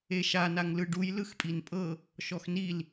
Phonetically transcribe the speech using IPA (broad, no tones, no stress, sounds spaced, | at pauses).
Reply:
e ʃ a n a ŋ l ɯ ɖ u j l ɯ x pʼ i n pʼ ɤ | ʃ ɔ x n i l